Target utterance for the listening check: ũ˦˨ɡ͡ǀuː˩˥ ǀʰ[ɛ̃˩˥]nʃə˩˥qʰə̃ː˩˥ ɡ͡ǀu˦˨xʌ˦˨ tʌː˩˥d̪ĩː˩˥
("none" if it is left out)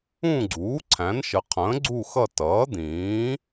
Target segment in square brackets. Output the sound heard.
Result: æ̃˩˥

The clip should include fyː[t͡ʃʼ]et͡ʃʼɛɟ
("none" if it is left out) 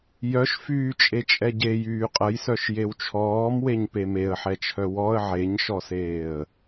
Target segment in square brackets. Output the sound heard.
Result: t͡ʃʼ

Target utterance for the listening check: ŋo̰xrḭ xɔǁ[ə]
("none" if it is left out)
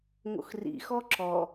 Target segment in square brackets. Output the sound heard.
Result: ɔ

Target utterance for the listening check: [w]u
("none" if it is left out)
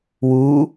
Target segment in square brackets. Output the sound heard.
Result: w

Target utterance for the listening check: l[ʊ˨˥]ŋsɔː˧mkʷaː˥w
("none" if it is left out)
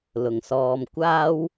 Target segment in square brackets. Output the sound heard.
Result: ʊ˨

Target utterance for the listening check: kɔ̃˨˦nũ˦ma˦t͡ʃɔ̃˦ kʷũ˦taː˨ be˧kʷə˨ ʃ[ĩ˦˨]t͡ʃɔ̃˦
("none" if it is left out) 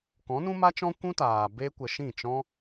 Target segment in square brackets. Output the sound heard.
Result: ĩ˦˨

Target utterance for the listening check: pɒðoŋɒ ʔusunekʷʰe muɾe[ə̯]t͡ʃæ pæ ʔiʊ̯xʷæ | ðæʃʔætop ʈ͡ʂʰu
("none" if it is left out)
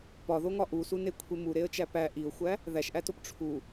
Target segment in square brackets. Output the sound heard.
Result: ə̯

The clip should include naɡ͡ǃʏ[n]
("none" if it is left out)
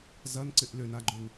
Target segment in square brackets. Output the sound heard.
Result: n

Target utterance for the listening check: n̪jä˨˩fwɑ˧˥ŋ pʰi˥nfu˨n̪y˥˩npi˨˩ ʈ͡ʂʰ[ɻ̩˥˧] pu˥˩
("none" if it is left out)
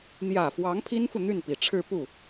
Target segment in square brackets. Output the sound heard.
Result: ɻ̩˥˧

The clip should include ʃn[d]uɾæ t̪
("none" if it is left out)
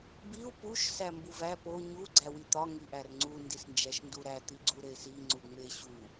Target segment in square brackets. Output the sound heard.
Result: d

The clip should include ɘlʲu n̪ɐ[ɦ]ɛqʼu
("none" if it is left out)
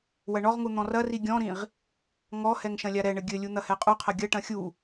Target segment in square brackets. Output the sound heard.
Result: h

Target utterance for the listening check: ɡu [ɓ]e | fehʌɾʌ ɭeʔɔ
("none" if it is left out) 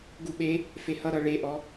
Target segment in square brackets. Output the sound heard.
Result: ɓ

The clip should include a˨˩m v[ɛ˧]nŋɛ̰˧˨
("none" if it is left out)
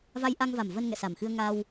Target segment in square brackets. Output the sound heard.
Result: ə˧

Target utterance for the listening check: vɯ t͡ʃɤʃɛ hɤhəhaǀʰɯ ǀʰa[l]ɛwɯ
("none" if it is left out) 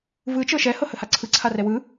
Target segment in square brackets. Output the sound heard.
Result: r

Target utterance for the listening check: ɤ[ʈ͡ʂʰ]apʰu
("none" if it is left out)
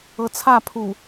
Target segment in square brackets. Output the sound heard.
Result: t͡sʰ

